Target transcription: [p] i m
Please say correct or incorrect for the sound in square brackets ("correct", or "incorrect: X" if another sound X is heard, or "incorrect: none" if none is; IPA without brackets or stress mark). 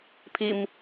incorrect: pʰ